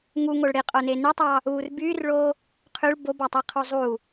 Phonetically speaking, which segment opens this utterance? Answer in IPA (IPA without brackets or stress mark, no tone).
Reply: ŋ